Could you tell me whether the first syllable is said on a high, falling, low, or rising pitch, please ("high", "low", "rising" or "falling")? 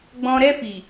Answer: low